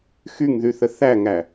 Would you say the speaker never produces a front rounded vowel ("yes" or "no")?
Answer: no